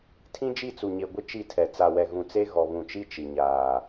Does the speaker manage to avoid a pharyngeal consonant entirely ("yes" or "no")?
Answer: yes